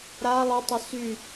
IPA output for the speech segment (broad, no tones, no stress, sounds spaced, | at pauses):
ɾ a lˠ ʊ tˤ ə s y